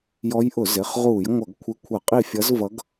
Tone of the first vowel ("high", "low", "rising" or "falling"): rising